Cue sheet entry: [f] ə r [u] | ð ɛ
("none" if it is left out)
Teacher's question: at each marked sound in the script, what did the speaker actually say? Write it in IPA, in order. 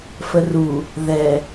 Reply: f, u

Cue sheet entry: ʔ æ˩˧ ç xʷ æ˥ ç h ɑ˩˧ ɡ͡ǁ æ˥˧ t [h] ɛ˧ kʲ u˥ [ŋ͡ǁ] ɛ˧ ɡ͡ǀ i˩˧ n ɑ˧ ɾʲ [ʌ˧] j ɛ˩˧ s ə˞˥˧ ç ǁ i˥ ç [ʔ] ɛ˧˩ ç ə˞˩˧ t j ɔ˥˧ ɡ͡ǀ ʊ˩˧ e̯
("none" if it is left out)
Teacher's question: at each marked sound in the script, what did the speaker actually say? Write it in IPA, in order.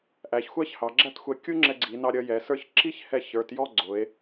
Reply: xʷ, ŋ͡ǁ, ʌ˧, h

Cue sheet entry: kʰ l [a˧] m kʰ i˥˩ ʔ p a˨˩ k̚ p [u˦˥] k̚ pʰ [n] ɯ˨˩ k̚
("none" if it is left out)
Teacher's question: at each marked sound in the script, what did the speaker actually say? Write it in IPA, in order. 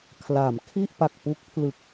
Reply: a˩˦, u˦˥, l

